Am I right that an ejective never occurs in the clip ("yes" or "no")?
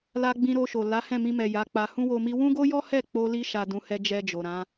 yes